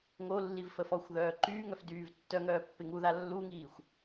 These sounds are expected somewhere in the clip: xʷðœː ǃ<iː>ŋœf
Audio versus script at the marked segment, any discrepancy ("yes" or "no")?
yes